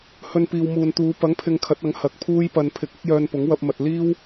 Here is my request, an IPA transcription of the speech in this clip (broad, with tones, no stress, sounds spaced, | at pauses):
h ɵ˧ n p iː˨ w m uː˨ n t̪ uː˨˧ p ɐ˨˥ ŋ pʰ ɪ˨ ŋ kʰ ɐ˨˥ t̚ ɐ˨˥ ŋ h ɐ˨ k̚ pʰ uː˥ j p ɐ˧ n pʰ ɪ˧ k̚ ɪ˥ k̚ j œː˧ n p ʊ˨˥ ŋ w ɐ˧ p̚ m ɐ˨ t̚ l iː˥ w